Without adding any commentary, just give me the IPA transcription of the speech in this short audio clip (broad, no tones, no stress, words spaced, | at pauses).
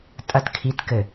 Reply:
tʼɐt kʰit kɘ